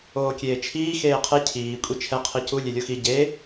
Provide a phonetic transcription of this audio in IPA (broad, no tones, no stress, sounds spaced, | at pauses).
oː kʲ eː t͡ʃʰ iː x eː qʰ e cʰ iː kʷʼ i t͡ʃʰ ɛ qʰ i c u lʲ e lʲ o x i ɟ e